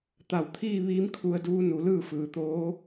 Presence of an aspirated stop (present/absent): present